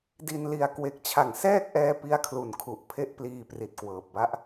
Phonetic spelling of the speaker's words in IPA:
di˧nli˧a̯ kwe˨˩k̚t͡ɕʰa˩˦ŋsɛː˥˩k̚ʔɛː˧ pi˦˥a̯kʰlu˩˦n kʰu˨˩ʔ pʰe˥˩ʔpliː˧ pri˨˩t̚kwɤː˨˩p̚ba˦˥ʔ

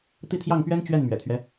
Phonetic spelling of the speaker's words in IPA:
t̪i˥˧t̪ʰjɑ˥˩ŋpɥɛ˥n t͡ɕɥɛ˥˩nmɥɛ̰˨˩t̪ʰɥɛ˦

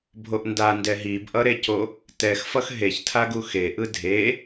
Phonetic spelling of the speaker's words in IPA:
bʱoʔndandɛ ɦibʔʌɾeco | tɛxfʌx ɦeçtʰa ɡuxeʔɯ dʱe

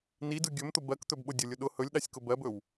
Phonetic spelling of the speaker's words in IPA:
nidɯ ɡʲɵmt̪ʊ bɜkt̪ɵbɓʊ dʲʊlʲʊ ɗʊ hɵlʲɗasʲkʊ bɜbɵw

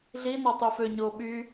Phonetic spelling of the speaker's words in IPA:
ɮinɔ tˤyføɲoː ɓy

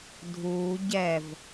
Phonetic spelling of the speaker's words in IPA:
dʱuː ɟɛv

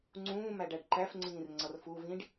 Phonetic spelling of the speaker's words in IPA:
ŋ͡ǀũːmæɖæɖ ǃæfŋ͡ǀĩːr ŋ͡ǀʌrfu vĩɖ

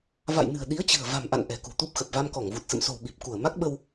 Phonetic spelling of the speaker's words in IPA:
va̰˧˨jnɨ̤˨˩ə̯ɗi˨˦ə̯ t͡ɕɨ̤˨˩ə̯ va̤˨˩mʔa̰˧˨n ʔɛ̤˨˩kṳ˨˩t̪u˦˥p̚ xə˨˩p̚va˧mkɔ˧˩ŋvu˨˩t̚ sə̰˧˨mso̤˨˩wɓi˨˩p̚ ku˧˩ə̯ma˦˥k̚ɓə˧w

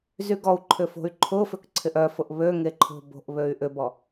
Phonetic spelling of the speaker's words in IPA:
zyɡɔu̯ǃʰʏ fo̤y̯ǃʰʊfʏk ǀʰɪʔœfʊʔ βø ŋeǃʰo̤bo̤ʔ βøy̯ʔʏbɔ

